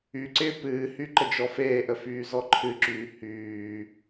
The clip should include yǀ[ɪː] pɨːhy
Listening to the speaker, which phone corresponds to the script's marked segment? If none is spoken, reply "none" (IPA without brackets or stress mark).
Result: ɪː